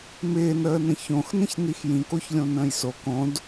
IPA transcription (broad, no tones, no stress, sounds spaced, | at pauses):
m ɪː n əː n ə̃ ç õ x n ə̃ ç n i x j ĩ k o ç lʲ õ n ə̃ː j s o k õ d